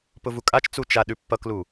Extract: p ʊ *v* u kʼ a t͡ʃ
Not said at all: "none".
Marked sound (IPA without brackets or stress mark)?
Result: v